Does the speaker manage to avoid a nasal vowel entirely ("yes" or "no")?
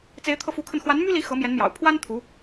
yes